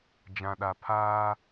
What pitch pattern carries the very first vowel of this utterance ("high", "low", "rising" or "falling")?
low